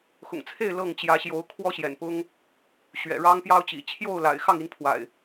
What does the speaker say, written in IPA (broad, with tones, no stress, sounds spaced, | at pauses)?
x ʊ̰˨˩ ŋ t͡sʰ e˥˨ ɪ̯ l ɤ˥˨ ŋ t͡ɕ j ä˨˦ ɕ j o˨˦ ʊ̯ kʰ w ɔ˦ ɕ j ɛ̰˨˩ n p ʊ˦ ŋ | ɕ ɥ ɛ̰˨˩ ɻ ɑ˦ ŋ p j ɑ˦ ʊ̯ t͡ɕ ḭ˨˩ t͡ɕʰ j o˥˨ ʊ̯ l a̰˨˩ ɪ̯ x ɑ˥˨ ŋ i˨˦ n pʰ w a̰˨˩ ɪ̯